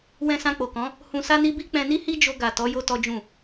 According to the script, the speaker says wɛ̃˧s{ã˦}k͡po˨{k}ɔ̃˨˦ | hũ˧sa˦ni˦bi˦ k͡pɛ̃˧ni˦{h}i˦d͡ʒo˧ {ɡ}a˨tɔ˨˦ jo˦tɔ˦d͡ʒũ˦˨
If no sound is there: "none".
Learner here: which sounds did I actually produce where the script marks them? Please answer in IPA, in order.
ã˧, k, h, ɡ

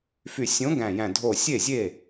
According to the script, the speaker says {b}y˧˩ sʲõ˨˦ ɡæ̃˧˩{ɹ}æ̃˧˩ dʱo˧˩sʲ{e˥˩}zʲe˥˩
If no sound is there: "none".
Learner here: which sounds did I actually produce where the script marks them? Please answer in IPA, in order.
f, j, e˥˩

